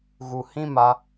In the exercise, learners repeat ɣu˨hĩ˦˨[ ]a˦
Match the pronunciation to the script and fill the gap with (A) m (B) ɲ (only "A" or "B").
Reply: A